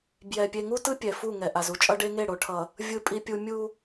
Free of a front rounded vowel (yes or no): yes